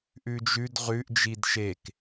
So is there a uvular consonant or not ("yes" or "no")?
yes